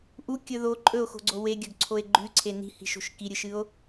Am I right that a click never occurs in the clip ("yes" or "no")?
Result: no